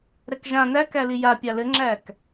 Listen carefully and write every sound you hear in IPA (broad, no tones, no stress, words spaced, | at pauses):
ɾɛkʒã nækæli ja pʲalɘŋ͡ǁæk